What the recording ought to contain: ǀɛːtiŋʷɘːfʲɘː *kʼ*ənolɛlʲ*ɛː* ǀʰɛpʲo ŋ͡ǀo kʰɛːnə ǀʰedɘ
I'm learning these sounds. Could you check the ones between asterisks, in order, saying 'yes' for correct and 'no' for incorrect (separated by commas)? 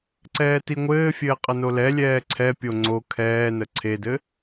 no, yes